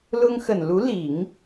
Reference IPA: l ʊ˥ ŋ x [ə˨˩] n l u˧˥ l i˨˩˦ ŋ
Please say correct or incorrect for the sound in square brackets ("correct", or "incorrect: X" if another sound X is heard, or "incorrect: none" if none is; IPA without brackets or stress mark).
correct